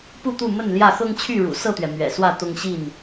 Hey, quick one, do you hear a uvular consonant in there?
no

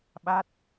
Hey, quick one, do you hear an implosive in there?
yes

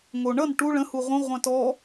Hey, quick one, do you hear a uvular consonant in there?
yes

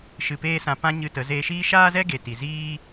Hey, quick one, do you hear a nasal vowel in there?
yes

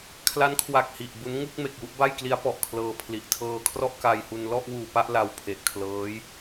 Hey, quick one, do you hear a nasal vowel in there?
no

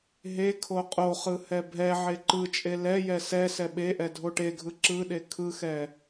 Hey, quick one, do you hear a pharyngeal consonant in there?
yes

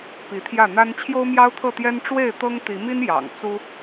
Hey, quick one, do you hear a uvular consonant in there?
no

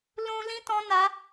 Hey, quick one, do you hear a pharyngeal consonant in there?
no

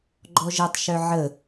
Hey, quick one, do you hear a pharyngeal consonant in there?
yes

